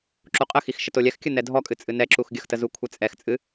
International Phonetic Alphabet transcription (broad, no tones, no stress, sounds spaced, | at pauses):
ǁ u qʼ ə x i x ʃ ə t o lʲ ɛ x kʲ ɨ n ɛ dʱ ɔ kʼ ɨ t͡sʼ ɨ n ɛ ǁ u x ɡʲ ə x t ə z u kʷʰ ɛ t͡sʼ ɛ x t͡sʼ ɨ